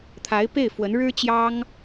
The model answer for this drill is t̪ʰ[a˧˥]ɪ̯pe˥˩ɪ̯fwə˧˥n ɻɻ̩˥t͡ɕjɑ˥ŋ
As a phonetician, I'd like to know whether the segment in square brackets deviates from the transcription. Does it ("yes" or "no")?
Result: no